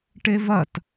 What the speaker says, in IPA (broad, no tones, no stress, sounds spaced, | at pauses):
ʈ e v ɐ t